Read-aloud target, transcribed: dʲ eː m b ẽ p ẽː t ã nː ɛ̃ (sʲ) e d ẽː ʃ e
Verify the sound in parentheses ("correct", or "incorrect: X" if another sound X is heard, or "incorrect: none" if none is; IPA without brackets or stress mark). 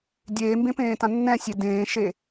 correct